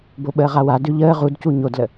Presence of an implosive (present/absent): present